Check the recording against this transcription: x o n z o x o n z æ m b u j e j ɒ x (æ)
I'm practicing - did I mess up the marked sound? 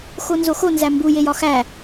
no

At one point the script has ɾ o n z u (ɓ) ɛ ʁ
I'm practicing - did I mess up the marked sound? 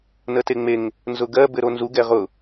yes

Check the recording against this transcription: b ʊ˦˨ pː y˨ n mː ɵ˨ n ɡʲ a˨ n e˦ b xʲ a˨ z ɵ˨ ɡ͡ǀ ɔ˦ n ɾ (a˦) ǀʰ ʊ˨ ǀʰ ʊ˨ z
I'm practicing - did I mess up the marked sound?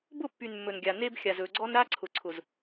no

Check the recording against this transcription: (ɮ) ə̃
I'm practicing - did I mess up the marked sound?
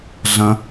no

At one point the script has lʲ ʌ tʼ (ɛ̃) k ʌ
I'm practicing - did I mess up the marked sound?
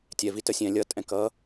no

